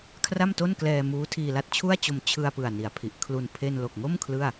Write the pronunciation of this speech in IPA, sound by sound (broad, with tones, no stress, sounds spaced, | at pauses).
kʰ r a˥˩ m t o˥˩ n k l ɛː˧ m uː˦˥ tʰ iː˧ l a˥˩ t̚ t͡ɕʰ u˥˩ a̯ t͡ɕ o˧ m t͡ɕʰ ɯ˧ a̯ p ɯ˨˩ a̯ n i˩˦ a̯ pʰ i˨˩ ʔ kʰ l u˧ n pʰ e˧ n l o˨˩ k̚ ŋ o˥˩ m kʰ l ɯ˥˩ a̯